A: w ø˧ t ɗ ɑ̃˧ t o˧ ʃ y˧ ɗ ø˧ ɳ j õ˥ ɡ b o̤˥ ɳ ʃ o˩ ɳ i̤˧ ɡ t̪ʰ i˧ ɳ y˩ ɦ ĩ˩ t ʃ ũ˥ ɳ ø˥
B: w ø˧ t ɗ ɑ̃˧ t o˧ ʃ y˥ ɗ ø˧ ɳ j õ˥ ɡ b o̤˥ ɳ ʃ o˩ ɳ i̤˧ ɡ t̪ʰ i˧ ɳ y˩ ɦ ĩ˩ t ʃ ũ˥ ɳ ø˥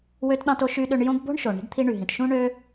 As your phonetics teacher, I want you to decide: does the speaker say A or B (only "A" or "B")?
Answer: A